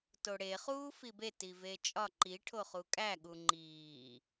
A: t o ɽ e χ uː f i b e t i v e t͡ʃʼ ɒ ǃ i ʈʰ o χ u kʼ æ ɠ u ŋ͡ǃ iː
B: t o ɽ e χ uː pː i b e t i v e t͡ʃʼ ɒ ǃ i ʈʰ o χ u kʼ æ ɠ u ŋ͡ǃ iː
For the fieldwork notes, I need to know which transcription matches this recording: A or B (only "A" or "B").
A